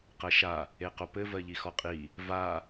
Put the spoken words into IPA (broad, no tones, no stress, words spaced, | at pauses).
qɜʃa | eqopɘ vɜʎixɔqʼi | va